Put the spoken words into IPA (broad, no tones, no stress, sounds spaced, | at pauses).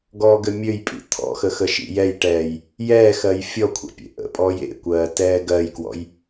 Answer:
ɡ ɔː ɡ ɘ mʲ ø j pʼ ḭ t̪ʰ ɔ̰ x ə x ə ʃ ḭ j ɛ j ʈ ɛː j | j ɛː x ɜ j fʲ ɔ kʷʰ ɛ̰ pʲ ḛ ʔ ə̰ pʼ ɔː j ḛ kʷ ɜː t ɛː ɡ ɜ j k w ɔ̰ j